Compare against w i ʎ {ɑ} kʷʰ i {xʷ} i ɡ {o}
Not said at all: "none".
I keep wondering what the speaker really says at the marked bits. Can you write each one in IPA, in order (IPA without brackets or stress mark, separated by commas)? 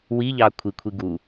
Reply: ɑ, kʷʰ, u